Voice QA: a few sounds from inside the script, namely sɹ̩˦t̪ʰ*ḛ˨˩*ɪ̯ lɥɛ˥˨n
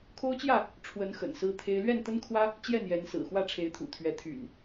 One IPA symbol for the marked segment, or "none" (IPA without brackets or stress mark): e˦